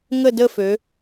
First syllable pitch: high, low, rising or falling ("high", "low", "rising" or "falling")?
falling